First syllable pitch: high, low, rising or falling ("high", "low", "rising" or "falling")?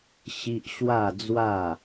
high